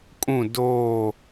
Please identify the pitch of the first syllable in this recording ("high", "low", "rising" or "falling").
falling